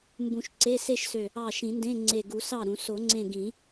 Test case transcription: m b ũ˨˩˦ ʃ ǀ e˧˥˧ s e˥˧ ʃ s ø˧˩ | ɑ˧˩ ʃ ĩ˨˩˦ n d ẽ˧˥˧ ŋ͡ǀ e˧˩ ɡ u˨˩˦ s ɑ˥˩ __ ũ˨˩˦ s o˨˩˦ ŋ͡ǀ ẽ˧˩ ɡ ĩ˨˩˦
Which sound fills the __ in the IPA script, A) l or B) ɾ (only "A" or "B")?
B